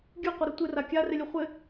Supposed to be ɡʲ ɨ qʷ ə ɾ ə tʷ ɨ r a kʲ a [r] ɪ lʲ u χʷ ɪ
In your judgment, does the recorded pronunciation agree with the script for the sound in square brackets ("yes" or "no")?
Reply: yes